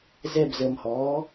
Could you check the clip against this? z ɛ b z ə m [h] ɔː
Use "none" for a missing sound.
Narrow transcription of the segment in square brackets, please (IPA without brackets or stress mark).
h